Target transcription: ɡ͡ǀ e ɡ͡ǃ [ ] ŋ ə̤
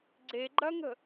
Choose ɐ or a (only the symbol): ɐ